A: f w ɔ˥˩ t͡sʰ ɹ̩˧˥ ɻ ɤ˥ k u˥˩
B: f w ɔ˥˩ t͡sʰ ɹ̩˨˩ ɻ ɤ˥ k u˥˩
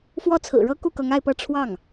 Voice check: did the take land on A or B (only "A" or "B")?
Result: B